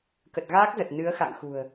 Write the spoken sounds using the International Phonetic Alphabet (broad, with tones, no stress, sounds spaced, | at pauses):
k ə˨˩ t̚ ɣ aː˦˥ k̚ z ə˨˩ t̚ n ɨ˨˦ ə̯ x a̰˧˨ ŋ x ṳ˨˩ ə̯